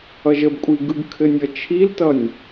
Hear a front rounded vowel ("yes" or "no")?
no